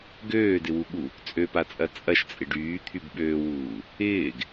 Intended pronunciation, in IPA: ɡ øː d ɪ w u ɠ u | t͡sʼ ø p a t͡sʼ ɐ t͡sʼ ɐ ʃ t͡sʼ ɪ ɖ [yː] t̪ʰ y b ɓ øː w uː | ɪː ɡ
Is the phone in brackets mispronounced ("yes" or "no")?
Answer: no